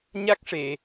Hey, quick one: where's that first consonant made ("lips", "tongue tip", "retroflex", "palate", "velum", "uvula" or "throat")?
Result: palate